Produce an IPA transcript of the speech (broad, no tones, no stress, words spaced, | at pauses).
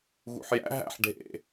ɣṵħjæ̰ ɦæ̰ħ ɖʱḛ